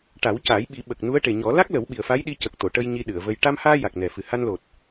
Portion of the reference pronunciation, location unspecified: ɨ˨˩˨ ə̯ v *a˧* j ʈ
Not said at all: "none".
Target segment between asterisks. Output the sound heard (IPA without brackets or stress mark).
ə˧